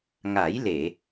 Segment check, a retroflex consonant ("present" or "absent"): absent